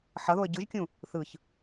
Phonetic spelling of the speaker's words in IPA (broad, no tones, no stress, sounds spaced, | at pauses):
ħ ʌ ð o ə̯ ɟ ɯ ʒ kʲ ũ | θ ɯ ç